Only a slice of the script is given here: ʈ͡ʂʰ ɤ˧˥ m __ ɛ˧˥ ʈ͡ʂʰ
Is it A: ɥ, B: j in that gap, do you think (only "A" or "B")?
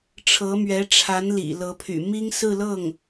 A